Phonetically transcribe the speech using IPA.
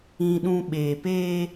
ĩ˦ ɗ ũ˦ ɓ eː˨ p eː˦

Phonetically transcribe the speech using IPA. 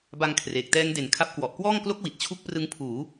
b a˧ ŋ kʰ r eː˨˩ k̚ t ɛː˦˥ ŋ d e˩˦ n kʰ a˦˥ p̚ k w ɔ˨˩ ʔ k w ɔː˥˩ ŋ k l o˦˥ k̚ w i˨˩ t̚ t͡ɕʰ u˦˥ k̚ p r ɯ˦˥ ŋ pʰ uː˩˦

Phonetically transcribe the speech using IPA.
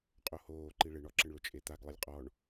qʼ o h oː ǃ i ɭ ɪ ɳ ɔ ǁ ɪ ɳ ɭ ʊ t͡ʃʼ e t̪ a ɡ lˠ ɪ lʲ qʼ ɔ ɳ

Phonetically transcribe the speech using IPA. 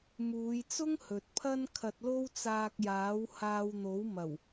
m uː˨˧ j t͡s ʊ˥ ŋ h ɵ˨ t̚ pʰ ɐ˥ n kʰ ɐ˧ t̚ l o˥ w t͡s aː˧ k̚ j aː˨˥ w h aː˧ w n̪ o˨˥ w m ɐ˨˩ w

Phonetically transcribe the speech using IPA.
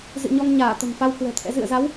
z ɨ̰˧˨ ɲ ɔ˧ ŋ ɲ aː˧˩ t̪ ə̤˨˩ m f a˧ w k w ɛ̤˨˩ t̪ʰ ɛ̰˧˥ z ɨ̰˧˨ ə̯ z a˨˦ w

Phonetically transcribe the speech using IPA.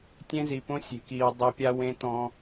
tʲ ẽ˦ z i˨ p õ˦ sʲ e̤˨ k iː˨ w dˤ e˨ pʲ a˦ w ẽ˦ t ɔ̃˦

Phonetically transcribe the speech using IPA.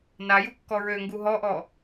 n a j u kː ɔ ɹ ø ŋ ɡ u ɦ ɔ ʔ ɔ

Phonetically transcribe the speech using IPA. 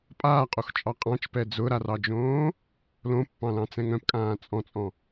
pʼ aː qʼ o x t͡ʃʼ ɑ qʼ ɑ̃ t͡ʃ p ɛ d͡z ʊ ɾ a r ɑ d͡ʒ õː | l õ pː ɑ̃ l ɑ̃ t͡s ɛ̃ ŋ œ̃ p kʼ ãː t͡sʼ ɔ̃ t͡sʼ ɔ̃

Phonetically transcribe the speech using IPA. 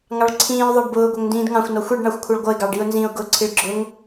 ŋ ɑ ɭ ǀʰ ĩː ʊ̯ ðˤ ɛ ɖ b ʊː ɡʷ ɛ ŋ n d ĩː d ŋ ɑ̃ xʷ n ɔ xʷ i ɖ ɳ ɑ xʷ kʷʰ ʌ ɭ ɡʷ ʌ ɪ̯ ɡ ɑ ɖ i ʊ̯ n z ĩ ʊ̯ ɡ ʊ ǀʰ i ɭ ɡ͡ǁ ʊ ŋ

